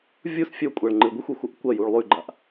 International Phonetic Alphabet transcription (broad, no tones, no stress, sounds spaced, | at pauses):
vʲ u s fʲ ɵ kʷʼ a ɭ ŋ͡ǃ ɨ ɡʷ ɨ xʷ e xʷ ɐ ʔ kʷ ɐ j u ɭ lˠ ʉ ɡ͡ǃ a ʔ